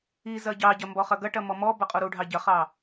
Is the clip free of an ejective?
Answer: no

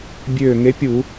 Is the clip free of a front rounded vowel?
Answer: no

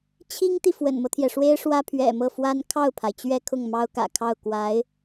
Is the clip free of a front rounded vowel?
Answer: yes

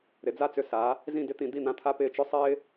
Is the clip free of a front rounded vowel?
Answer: no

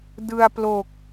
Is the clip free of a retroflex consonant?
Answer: yes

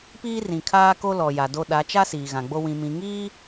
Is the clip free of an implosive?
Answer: no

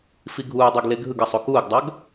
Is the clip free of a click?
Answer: yes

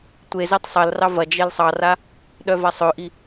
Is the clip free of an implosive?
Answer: no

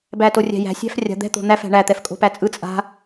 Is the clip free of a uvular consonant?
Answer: yes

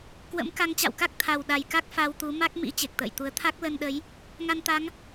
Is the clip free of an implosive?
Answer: no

